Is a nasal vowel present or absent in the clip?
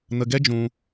present